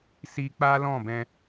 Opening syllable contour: high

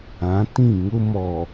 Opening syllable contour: rising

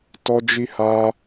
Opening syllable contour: high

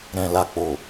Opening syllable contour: low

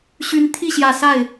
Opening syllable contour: rising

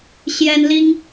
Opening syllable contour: high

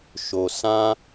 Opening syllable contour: low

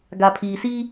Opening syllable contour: low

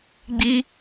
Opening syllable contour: high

